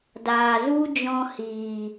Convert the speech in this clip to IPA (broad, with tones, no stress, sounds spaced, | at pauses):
d aː˨ z u˦ d͡ʒ ɔ̃˧ h iː˨